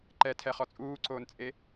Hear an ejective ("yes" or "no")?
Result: yes